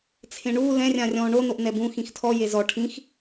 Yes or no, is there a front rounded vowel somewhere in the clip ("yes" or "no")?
no